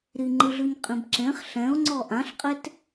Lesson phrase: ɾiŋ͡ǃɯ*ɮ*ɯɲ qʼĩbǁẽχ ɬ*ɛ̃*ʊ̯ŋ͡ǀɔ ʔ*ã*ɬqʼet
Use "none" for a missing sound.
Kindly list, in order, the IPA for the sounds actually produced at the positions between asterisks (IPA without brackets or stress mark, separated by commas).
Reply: ɮ, ɛ̃, ã